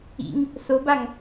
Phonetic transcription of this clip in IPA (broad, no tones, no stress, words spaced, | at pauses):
ḭŋ | sobaŋ